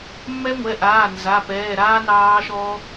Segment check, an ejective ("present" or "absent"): absent